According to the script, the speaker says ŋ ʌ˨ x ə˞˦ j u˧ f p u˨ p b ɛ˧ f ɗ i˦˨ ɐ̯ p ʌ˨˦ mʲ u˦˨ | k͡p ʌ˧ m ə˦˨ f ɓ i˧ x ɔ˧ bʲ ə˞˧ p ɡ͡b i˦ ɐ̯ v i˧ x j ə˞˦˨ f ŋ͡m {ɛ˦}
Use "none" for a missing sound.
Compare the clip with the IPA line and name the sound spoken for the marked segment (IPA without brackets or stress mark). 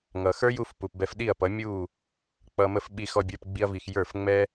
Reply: ɛ˦